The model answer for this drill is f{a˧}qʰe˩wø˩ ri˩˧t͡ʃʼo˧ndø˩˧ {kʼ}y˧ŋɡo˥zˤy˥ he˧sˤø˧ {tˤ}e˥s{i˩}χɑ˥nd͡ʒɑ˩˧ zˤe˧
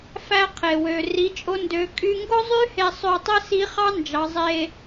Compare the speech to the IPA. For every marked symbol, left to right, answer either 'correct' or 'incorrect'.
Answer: incorrect: æ˧, correct, correct, incorrect: i˧˥

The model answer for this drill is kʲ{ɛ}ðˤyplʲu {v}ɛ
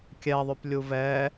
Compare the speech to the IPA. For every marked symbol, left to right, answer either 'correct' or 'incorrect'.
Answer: correct, correct

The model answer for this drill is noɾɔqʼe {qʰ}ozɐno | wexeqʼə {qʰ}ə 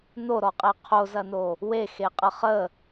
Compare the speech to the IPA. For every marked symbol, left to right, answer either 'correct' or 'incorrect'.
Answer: correct, incorrect: χ

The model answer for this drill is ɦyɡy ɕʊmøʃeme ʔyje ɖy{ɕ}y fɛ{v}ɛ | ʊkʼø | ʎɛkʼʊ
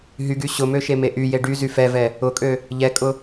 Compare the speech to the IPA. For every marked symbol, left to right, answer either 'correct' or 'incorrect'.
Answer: incorrect: z, correct

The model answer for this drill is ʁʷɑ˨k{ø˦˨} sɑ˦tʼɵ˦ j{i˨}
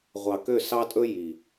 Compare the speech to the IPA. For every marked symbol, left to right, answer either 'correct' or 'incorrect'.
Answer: correct, correct

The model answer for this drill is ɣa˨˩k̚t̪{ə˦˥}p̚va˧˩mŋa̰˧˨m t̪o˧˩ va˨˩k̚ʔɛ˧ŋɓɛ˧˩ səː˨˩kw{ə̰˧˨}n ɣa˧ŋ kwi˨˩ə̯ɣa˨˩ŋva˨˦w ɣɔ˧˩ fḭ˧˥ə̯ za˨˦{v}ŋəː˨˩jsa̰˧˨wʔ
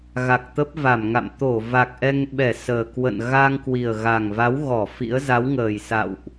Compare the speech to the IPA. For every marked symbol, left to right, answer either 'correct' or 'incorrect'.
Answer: correct, correct, incorrect: w

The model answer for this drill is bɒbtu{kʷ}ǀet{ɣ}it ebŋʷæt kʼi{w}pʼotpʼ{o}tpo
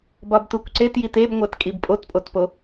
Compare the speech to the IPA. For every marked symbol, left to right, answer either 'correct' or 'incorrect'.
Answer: correct, incorrect: j, incorrect: b, correct

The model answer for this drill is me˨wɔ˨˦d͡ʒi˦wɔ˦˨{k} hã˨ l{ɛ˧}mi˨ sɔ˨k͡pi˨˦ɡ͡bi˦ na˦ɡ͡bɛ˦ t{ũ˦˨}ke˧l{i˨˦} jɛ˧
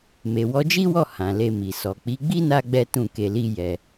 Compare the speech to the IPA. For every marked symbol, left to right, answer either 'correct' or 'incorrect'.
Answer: incorrect: none, incorrect: e˧, correct, incorrect: i˦

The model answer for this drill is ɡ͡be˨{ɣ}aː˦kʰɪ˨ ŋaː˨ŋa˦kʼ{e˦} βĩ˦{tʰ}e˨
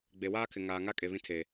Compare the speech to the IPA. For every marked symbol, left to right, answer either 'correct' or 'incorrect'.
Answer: incorrect: w, incorrect: e˨, correct

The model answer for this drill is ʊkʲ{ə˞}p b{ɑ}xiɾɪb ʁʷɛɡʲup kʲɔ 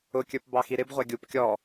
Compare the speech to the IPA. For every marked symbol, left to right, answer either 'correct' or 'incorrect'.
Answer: correct, correct

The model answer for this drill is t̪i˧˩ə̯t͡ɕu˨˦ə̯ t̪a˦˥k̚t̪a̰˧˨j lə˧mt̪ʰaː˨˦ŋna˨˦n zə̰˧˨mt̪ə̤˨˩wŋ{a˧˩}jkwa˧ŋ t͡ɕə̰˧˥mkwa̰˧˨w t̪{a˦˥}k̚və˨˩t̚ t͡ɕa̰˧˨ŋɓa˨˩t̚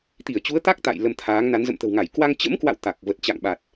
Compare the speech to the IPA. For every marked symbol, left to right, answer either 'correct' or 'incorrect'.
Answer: correct, incorrect: a˨˩

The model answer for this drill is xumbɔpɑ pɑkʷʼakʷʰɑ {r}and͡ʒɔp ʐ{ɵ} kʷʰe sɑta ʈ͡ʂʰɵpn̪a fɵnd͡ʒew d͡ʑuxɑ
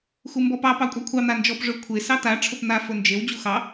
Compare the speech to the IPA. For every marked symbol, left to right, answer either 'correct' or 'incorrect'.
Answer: incorrect: n̪, correct

